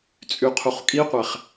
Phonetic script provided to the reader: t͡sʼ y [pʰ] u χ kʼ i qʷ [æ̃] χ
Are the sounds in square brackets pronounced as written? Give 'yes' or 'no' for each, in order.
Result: no, no

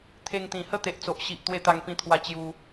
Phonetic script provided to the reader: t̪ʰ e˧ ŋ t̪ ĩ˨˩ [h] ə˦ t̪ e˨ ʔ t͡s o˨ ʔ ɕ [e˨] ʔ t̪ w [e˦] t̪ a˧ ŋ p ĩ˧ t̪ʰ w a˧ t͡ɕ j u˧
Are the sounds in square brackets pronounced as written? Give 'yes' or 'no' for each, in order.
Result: yes, no, no

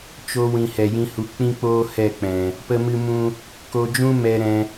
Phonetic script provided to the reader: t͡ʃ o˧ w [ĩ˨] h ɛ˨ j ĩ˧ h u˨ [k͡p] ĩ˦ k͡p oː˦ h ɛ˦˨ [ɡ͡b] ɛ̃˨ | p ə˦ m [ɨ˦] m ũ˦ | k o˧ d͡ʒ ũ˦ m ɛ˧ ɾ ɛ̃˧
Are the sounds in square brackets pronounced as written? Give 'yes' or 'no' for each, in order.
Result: yes, yes, no, yes

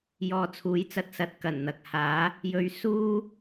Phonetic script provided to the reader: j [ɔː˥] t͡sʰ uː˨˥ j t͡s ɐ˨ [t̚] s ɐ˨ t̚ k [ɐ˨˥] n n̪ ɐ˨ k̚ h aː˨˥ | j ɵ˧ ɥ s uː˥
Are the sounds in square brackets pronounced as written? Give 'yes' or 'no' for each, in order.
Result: no, yes, no

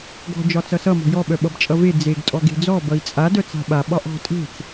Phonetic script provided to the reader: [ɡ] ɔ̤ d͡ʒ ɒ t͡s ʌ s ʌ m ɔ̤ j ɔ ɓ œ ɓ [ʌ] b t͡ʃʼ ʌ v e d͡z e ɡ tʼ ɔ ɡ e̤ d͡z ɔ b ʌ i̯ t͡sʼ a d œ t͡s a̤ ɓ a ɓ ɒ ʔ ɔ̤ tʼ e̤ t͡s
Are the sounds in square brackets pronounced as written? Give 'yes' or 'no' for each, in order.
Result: yes, yes

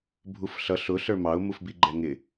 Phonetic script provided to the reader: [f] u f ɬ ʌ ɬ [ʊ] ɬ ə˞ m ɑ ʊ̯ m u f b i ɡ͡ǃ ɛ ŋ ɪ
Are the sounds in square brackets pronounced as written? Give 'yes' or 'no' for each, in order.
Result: no, yes

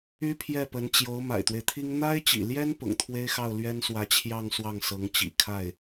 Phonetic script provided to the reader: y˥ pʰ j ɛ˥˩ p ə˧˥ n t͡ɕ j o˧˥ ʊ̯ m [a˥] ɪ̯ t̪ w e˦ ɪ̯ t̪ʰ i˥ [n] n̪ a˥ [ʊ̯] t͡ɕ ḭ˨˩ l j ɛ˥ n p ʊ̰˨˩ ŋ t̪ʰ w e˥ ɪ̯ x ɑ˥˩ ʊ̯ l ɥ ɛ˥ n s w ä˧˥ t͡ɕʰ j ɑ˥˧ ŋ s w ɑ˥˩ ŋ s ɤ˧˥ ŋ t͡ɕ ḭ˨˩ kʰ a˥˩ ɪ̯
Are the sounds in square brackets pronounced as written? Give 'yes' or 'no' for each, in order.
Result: no, no, no

